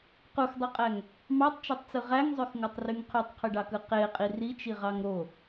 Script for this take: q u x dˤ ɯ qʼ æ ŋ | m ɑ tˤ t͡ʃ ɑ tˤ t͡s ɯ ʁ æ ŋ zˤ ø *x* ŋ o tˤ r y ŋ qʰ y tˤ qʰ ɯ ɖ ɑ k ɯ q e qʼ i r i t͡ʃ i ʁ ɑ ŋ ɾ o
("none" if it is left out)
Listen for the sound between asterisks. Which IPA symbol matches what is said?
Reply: x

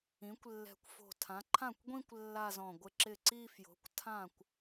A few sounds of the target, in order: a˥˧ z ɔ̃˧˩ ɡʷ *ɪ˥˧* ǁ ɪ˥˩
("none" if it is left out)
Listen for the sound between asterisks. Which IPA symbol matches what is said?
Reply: ɪ˥˩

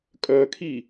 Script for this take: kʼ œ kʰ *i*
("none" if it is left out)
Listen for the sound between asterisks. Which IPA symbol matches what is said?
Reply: i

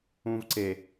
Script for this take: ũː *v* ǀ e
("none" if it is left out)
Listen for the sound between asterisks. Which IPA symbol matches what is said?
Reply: v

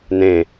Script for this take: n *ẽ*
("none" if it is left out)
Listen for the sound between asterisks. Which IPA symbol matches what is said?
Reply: ẽ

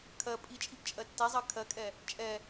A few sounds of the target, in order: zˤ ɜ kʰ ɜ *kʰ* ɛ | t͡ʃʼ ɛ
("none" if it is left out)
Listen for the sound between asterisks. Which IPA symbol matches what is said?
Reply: kʼ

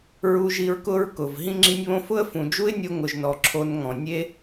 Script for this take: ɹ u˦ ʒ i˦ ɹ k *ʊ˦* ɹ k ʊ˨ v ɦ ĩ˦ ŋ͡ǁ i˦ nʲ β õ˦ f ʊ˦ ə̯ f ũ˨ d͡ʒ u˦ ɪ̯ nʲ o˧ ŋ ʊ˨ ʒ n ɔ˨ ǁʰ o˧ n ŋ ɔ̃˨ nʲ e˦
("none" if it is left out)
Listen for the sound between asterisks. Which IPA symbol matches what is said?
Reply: ʊ˦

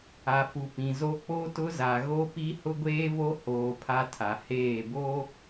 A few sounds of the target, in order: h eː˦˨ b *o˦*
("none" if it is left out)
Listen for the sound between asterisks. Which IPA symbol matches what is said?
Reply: o˦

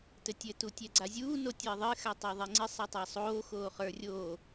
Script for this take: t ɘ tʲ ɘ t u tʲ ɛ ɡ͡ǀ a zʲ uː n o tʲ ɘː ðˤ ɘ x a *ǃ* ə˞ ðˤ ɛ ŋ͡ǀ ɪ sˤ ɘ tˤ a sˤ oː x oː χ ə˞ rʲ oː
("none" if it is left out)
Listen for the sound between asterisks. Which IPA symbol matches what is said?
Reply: tˤ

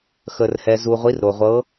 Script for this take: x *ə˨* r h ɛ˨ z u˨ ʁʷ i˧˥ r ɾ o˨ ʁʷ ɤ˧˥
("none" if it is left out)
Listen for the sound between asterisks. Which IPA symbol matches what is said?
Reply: ə˨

